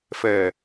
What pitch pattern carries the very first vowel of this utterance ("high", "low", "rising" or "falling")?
low